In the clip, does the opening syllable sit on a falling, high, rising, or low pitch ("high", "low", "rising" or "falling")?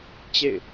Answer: falling